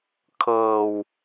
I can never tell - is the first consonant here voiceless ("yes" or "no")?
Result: yes